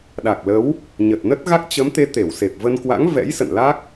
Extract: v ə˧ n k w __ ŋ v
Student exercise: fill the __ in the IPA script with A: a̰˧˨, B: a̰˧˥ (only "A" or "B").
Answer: B